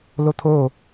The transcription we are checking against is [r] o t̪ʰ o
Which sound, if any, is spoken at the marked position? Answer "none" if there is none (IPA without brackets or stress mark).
l